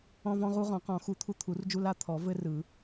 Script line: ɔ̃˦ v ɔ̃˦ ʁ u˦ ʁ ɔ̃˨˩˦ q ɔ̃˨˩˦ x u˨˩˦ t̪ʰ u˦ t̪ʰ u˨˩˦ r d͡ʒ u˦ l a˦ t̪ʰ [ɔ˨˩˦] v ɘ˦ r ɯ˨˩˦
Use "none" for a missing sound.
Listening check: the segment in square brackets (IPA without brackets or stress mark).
ɔ˨˩˦